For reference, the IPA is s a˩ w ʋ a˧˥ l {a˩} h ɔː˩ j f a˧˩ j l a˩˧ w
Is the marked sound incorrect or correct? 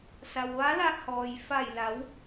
incorrect